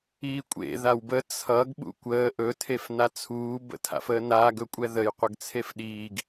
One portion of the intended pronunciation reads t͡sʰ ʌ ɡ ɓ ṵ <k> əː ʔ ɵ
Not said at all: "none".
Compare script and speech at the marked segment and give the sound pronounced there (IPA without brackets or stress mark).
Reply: kʷ